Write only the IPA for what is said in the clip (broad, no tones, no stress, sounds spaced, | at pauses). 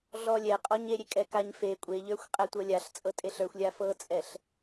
ɮ ɔ lʲ ɛ qʼ ɔ ɲ e ɾʲ e kʼ ɛ k a ɲ f e kʷʼ e ʎ ə˞ xʷ qʼ ɛ tʷ ɤ lʲ a ɬ t͡sʼ ɤ tʼ e ɬ ə˞ xʷ lʲ a f ɤ t͡sʼ ɛ ɬ